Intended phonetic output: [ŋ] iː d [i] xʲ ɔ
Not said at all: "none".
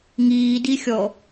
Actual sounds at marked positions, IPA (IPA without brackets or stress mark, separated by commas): ŋ, i